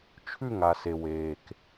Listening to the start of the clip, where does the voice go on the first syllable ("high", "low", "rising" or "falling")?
falling